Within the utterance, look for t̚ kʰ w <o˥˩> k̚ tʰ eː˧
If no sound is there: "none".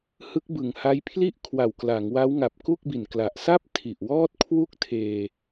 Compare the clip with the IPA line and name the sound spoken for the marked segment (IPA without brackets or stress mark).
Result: u˥˩